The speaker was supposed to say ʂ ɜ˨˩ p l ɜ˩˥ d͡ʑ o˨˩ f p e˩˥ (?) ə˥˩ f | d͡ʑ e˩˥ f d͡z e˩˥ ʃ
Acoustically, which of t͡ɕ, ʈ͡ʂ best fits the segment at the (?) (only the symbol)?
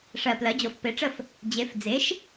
ʈ͡ʂ